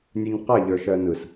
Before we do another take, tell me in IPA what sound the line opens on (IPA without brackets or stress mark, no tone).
nʲ